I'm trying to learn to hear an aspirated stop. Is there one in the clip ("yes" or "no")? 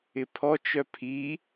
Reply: yes